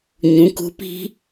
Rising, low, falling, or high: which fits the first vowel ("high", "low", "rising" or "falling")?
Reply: rising